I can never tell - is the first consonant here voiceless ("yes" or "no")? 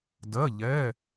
no